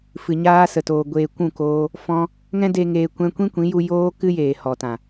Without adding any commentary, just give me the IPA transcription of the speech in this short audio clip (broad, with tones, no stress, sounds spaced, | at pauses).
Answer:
f ɨ˨ ɲ aː˧ s ə˨ t oː˨ ɡʷ eː˨ kʷ ũ˦˨ k oː˧ | f ɔ̃˦ | ŋ ɛ̃˦ d e˧ ŋ eː˧ kʷ ɛ̃˦ kʷ ĩ˦ kʷ ĩ˨˦ j u˧ j oː˦ k ɨ˦ j eː˨ h ɔ˨ t ã˨